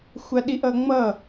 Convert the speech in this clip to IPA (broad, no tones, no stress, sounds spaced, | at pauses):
xʷ a ɗ i ʔ ʌ ŋ͡m ʌ